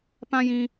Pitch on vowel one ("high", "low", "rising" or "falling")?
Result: high